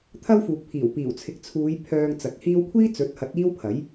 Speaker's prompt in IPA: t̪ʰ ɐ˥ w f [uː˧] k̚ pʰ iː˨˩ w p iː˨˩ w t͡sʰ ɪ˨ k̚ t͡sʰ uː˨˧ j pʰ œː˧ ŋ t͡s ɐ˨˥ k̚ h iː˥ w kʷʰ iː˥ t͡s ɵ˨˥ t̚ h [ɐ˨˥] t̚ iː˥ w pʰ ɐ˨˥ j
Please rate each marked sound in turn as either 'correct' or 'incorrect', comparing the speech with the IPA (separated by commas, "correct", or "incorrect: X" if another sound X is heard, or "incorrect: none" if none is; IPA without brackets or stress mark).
incorrect: uː˨, correct